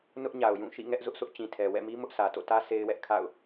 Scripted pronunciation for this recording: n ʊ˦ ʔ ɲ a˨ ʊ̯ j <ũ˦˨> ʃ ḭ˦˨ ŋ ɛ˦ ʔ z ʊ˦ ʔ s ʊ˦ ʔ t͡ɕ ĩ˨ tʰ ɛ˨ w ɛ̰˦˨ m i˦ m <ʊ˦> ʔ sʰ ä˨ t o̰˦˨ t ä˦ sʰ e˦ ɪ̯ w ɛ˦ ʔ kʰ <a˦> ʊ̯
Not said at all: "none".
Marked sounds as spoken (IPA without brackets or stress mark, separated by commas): ũ˦˨, ʊ˦, a̰˦˨